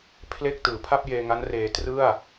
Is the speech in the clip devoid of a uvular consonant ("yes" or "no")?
yes